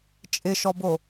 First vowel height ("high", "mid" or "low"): high